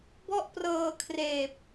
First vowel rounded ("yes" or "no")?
yes